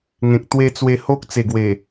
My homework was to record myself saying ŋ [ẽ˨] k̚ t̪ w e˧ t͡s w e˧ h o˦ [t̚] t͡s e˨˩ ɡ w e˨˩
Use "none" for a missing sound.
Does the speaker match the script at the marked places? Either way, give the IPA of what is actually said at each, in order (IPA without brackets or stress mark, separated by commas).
ẽ˨, k̚